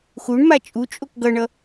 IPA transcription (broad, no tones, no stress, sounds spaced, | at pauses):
x u ɳ m a t͡ʃʼ u t͡ʃʼ o k ɡ ʌ ɳ ʌ